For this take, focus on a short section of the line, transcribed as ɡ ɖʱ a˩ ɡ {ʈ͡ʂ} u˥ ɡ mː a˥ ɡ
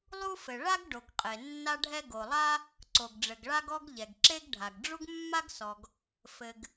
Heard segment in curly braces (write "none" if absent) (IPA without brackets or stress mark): ɖ͡ʐ